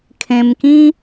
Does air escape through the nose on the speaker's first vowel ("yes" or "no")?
yes